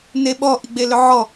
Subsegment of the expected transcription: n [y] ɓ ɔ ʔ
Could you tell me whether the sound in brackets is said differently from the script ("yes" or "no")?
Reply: yes